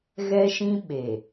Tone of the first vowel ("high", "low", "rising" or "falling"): high